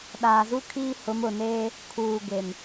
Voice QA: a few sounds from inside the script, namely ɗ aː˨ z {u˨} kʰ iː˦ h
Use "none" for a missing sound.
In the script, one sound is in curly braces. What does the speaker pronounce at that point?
u˦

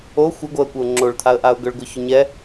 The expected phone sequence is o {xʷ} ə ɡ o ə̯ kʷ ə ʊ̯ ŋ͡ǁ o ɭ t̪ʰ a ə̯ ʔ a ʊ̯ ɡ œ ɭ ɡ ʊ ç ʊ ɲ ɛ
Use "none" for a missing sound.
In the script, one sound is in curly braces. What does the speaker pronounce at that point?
xʷ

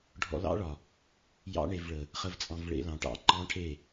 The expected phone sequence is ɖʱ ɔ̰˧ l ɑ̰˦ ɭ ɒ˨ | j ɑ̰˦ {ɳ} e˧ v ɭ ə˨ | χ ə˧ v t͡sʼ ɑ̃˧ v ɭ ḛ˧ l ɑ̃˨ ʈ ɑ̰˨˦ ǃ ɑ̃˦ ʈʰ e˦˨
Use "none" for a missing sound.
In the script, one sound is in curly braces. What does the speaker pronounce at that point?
ɳ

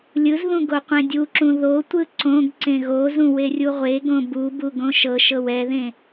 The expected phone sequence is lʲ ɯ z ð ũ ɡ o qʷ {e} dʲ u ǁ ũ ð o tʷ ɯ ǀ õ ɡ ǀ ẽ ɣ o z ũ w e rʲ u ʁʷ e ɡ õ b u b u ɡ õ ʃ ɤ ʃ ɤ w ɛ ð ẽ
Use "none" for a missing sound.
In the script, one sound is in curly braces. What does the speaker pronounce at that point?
ẽ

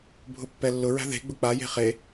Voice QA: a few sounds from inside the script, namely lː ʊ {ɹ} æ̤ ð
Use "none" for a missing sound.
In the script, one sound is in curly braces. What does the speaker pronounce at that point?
ɹ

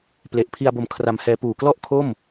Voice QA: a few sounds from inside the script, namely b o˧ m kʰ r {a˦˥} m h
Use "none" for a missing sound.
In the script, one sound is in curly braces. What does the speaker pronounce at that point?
a˧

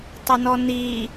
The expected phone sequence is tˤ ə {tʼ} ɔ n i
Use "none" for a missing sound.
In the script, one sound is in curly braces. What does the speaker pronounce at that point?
n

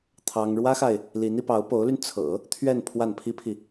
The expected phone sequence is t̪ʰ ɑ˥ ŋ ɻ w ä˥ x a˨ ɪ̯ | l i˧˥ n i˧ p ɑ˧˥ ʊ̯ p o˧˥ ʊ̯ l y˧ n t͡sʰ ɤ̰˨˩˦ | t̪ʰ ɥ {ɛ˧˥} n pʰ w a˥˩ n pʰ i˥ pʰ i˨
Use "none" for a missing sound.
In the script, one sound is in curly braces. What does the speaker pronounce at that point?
ɛ˥˧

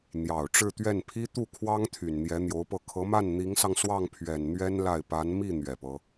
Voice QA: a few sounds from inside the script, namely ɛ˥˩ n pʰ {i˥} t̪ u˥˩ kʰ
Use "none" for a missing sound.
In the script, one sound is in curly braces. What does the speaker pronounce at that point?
i˥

